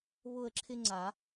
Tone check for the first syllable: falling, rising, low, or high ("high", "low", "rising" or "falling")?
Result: falling